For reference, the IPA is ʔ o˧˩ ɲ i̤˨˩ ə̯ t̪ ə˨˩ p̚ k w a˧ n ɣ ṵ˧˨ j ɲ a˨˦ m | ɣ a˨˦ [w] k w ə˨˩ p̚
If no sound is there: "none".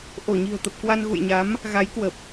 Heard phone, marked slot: j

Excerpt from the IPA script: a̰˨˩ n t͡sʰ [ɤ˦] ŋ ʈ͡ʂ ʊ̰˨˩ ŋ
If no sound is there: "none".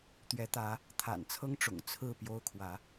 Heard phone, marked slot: ɤ˦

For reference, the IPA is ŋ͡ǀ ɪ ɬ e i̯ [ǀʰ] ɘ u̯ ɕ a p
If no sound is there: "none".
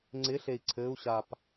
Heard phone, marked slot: ǀʰ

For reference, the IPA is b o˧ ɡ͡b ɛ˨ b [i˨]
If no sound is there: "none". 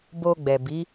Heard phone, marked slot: i˨˦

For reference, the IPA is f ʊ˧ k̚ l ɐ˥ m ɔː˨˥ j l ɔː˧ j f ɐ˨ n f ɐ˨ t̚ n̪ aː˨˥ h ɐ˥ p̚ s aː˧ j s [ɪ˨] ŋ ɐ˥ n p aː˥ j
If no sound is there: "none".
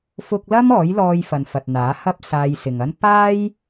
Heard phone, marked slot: ɪ˨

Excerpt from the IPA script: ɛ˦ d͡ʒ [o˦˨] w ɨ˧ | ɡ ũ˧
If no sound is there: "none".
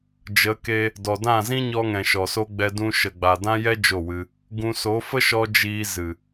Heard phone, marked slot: o˦˨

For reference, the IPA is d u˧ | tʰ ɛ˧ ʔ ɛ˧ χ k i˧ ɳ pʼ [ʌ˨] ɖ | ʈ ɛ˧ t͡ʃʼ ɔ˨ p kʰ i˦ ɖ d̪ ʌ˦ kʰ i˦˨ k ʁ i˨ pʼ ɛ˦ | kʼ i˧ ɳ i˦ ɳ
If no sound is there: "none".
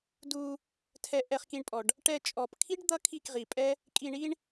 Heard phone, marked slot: ɔ˨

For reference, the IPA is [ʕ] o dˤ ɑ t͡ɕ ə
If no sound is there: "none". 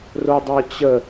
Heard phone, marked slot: r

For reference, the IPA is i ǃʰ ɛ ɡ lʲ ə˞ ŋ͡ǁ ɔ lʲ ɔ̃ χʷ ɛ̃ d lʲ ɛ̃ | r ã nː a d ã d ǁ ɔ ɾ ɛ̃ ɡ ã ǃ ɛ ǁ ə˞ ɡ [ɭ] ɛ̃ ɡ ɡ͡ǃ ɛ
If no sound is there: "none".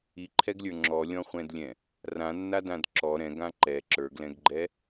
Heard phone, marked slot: l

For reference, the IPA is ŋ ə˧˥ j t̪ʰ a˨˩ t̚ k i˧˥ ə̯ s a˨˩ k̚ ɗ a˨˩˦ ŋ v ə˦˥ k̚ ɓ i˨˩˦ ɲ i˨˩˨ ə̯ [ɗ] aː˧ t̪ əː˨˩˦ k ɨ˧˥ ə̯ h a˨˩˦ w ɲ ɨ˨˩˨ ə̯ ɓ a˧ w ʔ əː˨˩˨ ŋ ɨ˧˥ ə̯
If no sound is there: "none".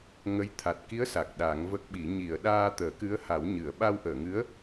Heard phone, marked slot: ɗ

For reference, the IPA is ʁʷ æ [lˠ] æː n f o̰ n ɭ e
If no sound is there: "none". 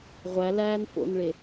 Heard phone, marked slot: l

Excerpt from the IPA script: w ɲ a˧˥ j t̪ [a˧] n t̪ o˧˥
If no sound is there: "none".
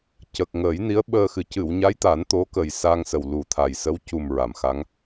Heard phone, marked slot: a˨˩˦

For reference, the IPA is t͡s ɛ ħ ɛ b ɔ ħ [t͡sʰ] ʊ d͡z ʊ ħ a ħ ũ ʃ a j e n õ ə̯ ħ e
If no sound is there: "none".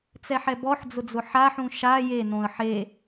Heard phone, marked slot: d͡z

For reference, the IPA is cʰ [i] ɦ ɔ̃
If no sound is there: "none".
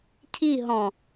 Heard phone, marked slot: i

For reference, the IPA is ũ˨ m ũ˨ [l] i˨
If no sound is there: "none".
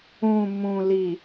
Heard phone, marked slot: l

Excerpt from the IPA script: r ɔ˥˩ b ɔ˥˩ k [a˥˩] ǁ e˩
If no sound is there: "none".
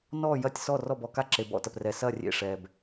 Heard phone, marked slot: a˥˩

